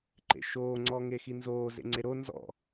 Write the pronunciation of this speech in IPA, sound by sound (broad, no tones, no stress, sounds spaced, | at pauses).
ǃ ḛ ʃ oː ŋ͡ǀ ɔ ŋ e x i n z oː z ḛ ŋ͡ǀ e ɾ o n z ɔ̰